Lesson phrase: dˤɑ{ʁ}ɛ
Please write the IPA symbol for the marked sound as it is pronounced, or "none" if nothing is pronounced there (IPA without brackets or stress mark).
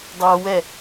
w